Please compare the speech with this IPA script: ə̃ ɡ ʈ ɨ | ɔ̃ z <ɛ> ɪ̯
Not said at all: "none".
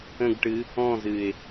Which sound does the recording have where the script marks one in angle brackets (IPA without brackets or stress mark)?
ɨ